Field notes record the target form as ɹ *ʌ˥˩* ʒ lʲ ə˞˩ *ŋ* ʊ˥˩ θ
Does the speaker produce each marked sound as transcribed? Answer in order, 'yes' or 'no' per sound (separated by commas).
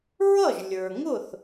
yes, yes